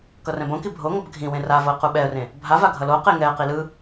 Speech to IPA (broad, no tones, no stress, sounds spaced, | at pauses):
k ʌ r ɛ̃ b õ k i bʱ o ŋ ʌ b ɡʱ ĩ w ẽ r a v o ə̯ q u ɓ ɛ ə̯ r ẽ | bʱ a v a ɡʱ ʌ l o q e ŋ ɛ ə̯ q i l ɯ